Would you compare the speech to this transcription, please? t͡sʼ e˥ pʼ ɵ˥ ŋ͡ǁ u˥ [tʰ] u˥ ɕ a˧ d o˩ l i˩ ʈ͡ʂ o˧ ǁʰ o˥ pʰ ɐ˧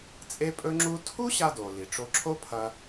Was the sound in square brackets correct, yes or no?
yes